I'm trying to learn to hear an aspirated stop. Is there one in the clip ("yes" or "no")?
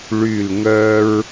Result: no